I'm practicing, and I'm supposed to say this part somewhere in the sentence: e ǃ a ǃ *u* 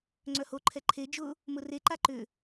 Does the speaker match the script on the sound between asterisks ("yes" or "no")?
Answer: no